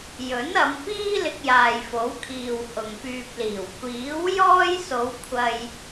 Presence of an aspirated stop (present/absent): present